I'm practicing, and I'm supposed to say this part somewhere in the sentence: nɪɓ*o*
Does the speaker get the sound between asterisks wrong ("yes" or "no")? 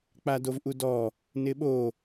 no